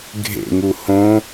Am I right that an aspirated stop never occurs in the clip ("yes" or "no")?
yes